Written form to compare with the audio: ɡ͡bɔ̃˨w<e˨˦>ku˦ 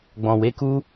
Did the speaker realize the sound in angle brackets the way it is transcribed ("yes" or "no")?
yes